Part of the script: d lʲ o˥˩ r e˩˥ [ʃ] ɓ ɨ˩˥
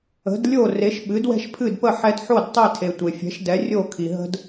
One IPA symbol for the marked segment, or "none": ʃ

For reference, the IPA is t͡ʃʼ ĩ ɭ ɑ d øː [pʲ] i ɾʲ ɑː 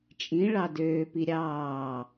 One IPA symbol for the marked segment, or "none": p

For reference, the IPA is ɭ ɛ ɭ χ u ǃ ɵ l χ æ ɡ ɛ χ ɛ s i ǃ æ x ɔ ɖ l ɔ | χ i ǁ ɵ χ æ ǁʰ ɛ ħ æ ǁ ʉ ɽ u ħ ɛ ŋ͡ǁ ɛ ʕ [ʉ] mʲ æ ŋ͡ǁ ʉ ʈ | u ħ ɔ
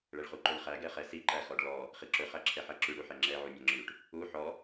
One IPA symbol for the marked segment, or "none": u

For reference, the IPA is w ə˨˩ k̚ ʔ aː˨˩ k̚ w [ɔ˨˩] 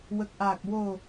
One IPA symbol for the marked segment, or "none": o˨˩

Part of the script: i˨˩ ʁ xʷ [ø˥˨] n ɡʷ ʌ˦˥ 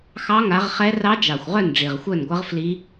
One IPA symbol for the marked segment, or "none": œ˥˨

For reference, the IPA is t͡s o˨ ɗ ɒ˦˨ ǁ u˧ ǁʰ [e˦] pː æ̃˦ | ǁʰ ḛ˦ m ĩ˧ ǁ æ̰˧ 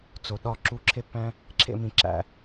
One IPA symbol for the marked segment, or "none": e˦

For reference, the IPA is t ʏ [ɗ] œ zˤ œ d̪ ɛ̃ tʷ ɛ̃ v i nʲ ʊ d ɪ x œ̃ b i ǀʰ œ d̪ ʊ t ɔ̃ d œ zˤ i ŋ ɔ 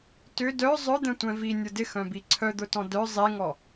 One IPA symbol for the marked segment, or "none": d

